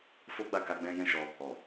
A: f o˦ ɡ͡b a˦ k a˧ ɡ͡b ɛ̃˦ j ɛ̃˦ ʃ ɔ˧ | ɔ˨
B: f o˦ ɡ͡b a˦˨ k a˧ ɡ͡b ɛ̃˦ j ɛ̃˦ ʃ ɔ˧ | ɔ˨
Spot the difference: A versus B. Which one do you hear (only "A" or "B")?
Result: B